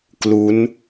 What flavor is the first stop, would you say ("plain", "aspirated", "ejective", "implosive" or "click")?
plain